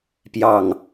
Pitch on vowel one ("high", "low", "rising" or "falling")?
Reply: falling